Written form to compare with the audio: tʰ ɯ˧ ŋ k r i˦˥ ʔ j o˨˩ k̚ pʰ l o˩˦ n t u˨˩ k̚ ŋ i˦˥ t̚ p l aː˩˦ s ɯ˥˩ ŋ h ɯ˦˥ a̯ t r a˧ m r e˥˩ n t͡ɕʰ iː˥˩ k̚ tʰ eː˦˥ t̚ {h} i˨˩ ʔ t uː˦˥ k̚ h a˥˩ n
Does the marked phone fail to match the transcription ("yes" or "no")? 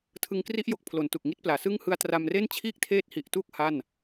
no